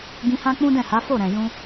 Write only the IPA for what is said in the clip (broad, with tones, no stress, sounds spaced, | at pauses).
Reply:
ɡ ĩ˧ h ã˦ k͡p ũ˦ d ɛ̃˦˨ h a˨˦ f o˦˨ ɾ ɛ̃˨ j ũ˧